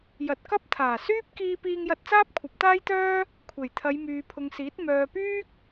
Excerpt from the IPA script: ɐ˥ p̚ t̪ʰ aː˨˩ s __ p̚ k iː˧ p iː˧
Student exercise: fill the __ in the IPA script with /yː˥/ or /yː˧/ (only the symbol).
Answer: yː˥